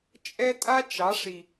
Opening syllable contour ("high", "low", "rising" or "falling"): high